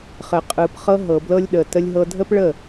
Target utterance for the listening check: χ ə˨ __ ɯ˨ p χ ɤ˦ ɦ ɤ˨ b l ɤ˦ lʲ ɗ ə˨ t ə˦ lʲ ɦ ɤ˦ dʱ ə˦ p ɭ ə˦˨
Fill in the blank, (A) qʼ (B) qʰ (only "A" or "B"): A